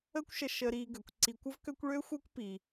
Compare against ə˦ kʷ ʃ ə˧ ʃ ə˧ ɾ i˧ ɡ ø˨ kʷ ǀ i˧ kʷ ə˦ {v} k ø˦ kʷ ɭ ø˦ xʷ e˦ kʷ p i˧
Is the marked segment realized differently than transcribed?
no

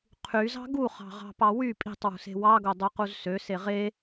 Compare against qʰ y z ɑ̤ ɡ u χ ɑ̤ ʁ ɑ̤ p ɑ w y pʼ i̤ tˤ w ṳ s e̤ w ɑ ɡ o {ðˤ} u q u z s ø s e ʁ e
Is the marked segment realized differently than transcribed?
yes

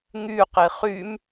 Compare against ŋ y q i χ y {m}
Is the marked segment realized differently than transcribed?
no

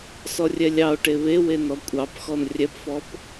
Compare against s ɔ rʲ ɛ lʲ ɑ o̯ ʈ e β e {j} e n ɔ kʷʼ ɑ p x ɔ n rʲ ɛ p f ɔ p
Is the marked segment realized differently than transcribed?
yes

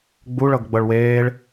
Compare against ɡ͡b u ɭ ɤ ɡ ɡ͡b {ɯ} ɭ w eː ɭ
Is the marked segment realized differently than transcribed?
yes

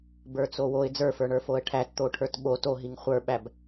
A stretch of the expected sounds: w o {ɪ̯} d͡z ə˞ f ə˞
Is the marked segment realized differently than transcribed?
no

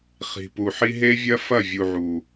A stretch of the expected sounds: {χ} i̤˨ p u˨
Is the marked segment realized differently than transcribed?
no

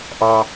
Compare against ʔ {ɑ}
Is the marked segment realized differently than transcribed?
no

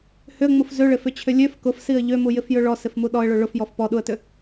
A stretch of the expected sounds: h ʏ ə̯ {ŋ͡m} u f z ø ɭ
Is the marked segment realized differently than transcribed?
no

